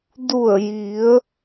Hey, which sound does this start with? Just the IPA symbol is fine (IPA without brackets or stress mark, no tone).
d